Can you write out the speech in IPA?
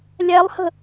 lʲ æ lˠ h ə̤

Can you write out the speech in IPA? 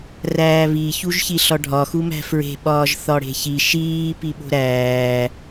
r æː β i ç u ʒ ç i ɬ ɒ ɖʱ ɒ x u m æ̤ f ɹ e̤ ɓ ɒː ʒ θ ɒ ɽ e̤ ç i ʃ iː p i ɓ o̤ ɾ æː

